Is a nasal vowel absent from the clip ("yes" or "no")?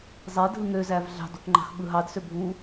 yes